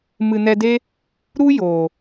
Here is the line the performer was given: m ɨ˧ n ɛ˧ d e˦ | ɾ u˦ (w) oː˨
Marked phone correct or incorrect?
incorrect